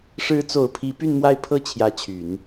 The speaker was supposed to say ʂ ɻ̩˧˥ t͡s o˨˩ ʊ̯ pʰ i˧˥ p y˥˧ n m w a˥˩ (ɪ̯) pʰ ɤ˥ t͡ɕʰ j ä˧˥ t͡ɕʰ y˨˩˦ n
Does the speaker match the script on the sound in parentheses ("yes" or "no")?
yes